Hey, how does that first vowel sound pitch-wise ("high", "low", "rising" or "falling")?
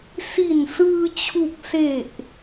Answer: low